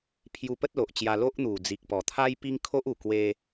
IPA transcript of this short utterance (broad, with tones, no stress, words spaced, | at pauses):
pʰju˧pə˦t̚lo˨ʔt͡ɕja˧ lo˦ʔn̪u˨˩ d͡zi˨k̚pɔ˨˩t̪ʰa˦jpi˦ŋ kʰo˦ʔu˨˩ kwe˦